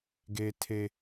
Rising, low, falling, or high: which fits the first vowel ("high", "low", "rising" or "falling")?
high